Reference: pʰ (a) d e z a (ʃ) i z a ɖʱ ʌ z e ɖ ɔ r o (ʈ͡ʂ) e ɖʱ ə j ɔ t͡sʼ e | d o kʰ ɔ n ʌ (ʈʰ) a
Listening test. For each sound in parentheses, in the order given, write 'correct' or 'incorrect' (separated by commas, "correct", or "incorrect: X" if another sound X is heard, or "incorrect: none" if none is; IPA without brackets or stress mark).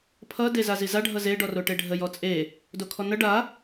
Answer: incorrect: ʌ, incorrect: z, incorrect: ʈ, incorrect: ɖ